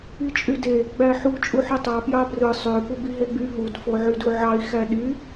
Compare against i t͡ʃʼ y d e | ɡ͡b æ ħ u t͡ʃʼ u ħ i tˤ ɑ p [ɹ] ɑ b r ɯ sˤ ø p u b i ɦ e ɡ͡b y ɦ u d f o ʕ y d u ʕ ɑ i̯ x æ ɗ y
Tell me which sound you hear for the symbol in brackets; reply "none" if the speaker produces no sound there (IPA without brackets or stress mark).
j